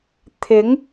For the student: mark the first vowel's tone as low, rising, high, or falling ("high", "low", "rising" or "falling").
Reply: rising